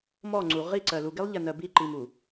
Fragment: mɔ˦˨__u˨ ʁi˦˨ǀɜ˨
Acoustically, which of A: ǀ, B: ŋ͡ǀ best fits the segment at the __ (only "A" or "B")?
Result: B